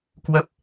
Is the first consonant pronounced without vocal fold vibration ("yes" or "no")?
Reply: yes